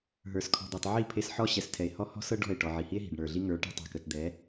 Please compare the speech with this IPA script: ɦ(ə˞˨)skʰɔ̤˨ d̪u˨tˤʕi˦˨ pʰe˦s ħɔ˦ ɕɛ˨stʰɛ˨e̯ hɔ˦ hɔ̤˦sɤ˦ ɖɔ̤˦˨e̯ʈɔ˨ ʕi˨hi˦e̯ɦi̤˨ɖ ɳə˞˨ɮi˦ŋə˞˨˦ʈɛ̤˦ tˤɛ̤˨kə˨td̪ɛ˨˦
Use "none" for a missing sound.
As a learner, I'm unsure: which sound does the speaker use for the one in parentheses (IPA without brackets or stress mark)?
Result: ə˞˨